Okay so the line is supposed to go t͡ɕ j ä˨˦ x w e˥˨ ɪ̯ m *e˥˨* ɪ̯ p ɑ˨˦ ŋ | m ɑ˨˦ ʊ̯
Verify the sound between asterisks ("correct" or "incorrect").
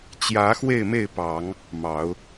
correct